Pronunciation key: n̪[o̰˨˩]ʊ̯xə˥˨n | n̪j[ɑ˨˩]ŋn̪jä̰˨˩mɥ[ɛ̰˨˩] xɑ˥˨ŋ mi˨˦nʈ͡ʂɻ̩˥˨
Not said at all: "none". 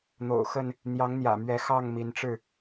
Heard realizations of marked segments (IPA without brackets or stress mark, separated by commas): o̰˨˩, ɑ˨˦, ɛ˨˦